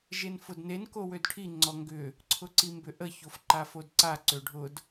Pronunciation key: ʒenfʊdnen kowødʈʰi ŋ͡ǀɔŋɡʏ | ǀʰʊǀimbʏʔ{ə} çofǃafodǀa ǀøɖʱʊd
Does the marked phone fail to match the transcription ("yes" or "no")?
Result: no